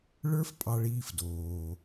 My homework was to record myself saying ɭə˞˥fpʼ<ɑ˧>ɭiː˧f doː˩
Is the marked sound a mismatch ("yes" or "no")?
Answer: no